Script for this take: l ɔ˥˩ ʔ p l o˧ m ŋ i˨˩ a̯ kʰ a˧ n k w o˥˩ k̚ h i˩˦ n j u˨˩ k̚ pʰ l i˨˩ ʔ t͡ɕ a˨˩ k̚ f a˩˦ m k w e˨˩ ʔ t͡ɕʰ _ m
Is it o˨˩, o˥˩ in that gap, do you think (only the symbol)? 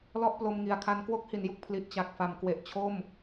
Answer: o˥˩